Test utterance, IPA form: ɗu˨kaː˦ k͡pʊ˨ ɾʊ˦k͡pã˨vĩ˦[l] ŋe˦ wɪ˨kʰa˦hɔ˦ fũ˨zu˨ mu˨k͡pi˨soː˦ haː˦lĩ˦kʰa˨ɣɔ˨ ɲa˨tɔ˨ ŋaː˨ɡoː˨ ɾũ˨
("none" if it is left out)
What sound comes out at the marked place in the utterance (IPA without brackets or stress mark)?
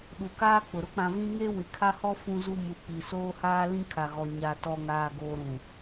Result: none